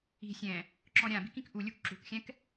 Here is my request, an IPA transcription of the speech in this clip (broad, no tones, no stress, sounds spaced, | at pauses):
i̤ sʲ ɛ̃ | ǁ ɔ̃ ɾʲ ã b i̤ k ĩ k ʔ u lʲ u k ǁ ṳ k xʲ ɛ̃ k